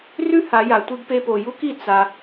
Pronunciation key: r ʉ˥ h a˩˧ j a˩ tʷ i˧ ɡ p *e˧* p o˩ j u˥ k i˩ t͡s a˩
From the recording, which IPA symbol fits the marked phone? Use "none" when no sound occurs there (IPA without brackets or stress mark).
e˧